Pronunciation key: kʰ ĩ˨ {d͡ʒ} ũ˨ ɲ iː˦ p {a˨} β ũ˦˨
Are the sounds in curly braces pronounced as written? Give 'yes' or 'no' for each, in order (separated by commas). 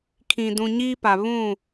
no, yes